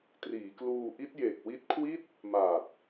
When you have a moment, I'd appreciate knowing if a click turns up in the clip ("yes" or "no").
no